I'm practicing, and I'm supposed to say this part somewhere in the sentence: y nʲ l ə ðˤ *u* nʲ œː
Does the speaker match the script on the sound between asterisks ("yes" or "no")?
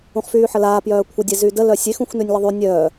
no